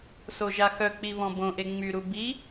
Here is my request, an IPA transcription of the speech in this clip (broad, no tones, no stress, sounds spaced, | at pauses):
s o ʒ a x œ k͡p i β ɔ̃ b õ ʔ e ŋ͡m y ɾ u b i